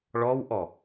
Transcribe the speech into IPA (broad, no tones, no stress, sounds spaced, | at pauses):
ɭ ɔ w ʔ ɔ